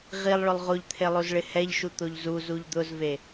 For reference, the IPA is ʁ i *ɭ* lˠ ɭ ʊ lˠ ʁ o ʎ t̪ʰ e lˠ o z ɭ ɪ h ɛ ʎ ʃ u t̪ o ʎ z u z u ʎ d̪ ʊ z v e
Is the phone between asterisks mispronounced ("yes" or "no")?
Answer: yes